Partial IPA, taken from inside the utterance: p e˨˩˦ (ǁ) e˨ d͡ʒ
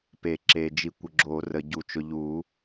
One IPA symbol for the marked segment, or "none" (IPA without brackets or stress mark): ǁ